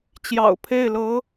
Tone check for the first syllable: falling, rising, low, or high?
low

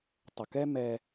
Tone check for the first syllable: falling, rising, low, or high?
low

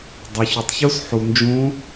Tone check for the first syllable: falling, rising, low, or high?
low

